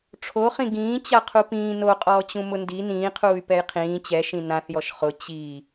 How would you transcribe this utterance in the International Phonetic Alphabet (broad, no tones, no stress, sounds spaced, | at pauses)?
ʈ͡ʂʰ o χ ĩ ɡ ĩː t͡ɕ a qʰ u p ĩː n o qʼ ɔː t͡ɕ ũ m ʊ n d i n ĩː qʰ uː y̯ p ɛ j qʰ ĩː t͡ɕ ɛ ʃ ĩ n ã θ j ɔ ʃ χ ʊ t͡ɕ i